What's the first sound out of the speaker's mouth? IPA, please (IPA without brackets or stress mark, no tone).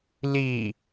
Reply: l